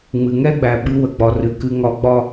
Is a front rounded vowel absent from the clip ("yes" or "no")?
yes